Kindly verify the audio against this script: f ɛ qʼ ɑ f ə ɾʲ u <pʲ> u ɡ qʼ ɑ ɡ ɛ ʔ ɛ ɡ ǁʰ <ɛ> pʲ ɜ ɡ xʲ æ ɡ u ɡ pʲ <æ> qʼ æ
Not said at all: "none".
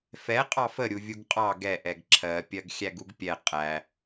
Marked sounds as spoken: vʲ, ɜ, ɛ

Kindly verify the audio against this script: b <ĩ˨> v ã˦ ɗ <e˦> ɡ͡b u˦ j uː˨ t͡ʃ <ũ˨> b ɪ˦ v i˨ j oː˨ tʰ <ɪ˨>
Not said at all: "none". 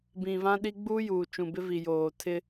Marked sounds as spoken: ĩ˨, i˦, ũ˨, ɪ˦

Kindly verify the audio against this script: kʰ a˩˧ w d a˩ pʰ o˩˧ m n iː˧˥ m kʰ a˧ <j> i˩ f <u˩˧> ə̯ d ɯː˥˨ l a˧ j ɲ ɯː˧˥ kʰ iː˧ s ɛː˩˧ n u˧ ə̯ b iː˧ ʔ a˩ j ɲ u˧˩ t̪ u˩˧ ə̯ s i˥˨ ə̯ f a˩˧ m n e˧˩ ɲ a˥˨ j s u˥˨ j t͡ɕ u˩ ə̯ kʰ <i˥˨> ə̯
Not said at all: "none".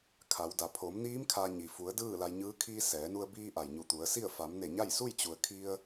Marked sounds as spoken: ɲ, u˩˧, i˧

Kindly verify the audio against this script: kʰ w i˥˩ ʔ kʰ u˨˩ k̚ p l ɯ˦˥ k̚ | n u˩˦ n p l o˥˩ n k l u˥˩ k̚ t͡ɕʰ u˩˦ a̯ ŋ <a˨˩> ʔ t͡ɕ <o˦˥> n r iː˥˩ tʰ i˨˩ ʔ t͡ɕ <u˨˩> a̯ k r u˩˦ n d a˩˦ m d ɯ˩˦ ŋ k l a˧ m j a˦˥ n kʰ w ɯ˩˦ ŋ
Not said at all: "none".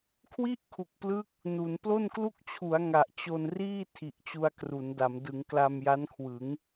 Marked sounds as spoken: a˨˩, o˧, u˧

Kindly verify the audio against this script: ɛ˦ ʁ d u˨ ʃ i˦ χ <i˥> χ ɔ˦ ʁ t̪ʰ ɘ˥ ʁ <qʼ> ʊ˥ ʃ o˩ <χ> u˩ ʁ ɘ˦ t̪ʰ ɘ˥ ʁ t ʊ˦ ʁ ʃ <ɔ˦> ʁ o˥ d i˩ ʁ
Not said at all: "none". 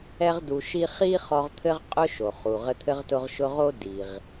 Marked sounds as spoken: i˥, qʼ, χ, ʊ˦

